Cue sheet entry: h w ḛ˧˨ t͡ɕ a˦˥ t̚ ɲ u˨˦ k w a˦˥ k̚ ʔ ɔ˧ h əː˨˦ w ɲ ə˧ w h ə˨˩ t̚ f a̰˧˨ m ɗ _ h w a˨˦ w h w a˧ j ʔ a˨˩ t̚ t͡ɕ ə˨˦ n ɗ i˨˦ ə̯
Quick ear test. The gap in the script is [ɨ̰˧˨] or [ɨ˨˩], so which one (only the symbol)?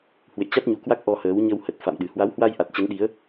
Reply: ɨ˨˩